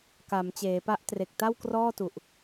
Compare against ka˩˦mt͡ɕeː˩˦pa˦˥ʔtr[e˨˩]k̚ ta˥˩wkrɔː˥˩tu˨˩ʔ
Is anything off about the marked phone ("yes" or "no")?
no